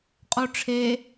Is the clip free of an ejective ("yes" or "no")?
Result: no